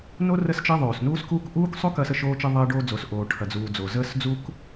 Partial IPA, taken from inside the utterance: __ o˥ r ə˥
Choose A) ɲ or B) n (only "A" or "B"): B